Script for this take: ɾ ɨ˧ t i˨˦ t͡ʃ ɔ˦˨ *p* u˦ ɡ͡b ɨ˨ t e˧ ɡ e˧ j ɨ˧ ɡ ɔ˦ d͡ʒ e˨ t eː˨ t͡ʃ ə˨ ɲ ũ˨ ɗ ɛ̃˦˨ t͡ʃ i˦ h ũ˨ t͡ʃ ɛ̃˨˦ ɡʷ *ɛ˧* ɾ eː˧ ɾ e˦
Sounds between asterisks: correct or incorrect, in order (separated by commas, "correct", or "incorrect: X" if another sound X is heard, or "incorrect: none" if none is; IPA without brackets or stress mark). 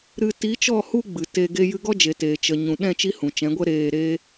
incorrect: h, incorrect: ɛ˦